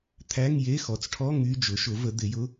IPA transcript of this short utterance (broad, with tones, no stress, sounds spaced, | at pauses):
t̪ʰ æ˧˥˧ ŋ j e˧˥˧ x ɔ˩˥ t͡s ʈʰ ɔ˧˥˧ ŋ y˧˥˧ d͡ʒ ʊ˩˥ ʃ ʊ˩˥ v ə˩˥ d̪ ɪ˩˥ j ʊ˧˥˧